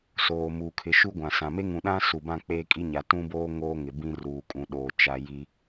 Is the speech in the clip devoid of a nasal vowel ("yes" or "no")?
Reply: no